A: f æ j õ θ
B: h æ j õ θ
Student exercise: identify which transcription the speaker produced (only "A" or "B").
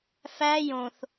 A